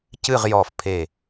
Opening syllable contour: falling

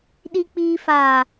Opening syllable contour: low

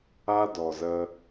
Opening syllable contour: high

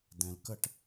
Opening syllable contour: low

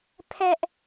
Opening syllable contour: high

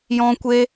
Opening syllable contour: high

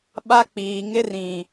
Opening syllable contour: high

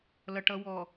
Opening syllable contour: low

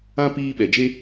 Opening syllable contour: high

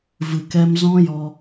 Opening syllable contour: low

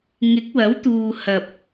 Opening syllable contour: rising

